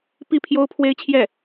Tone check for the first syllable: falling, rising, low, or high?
falling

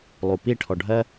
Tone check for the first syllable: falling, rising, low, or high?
low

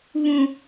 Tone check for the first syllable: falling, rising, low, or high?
low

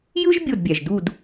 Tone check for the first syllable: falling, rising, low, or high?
high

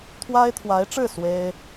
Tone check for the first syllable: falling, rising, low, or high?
high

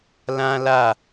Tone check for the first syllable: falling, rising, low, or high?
high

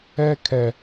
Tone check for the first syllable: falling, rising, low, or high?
high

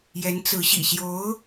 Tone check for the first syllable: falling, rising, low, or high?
rising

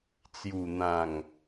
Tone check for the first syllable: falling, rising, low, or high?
low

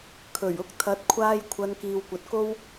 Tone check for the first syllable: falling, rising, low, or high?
low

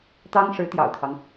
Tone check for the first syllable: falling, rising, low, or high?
high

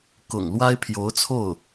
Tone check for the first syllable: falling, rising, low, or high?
low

